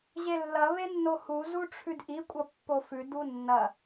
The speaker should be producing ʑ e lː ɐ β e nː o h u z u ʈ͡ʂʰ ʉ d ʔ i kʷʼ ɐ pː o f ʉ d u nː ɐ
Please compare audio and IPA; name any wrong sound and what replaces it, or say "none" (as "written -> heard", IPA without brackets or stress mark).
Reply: none